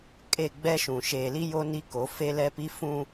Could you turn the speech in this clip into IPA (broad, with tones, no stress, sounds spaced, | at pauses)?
kʼ e˦˨ ɡ͡b ɛ˦ ʃ ũ˨ ʃ eː˨ l i˦ j o˦ n i˦ k o˨˦ f e˦ l ɛ˦ p i˦ f ũ˦